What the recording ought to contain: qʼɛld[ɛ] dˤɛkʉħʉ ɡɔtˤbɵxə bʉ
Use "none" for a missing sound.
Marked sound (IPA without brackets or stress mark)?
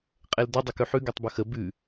ɛ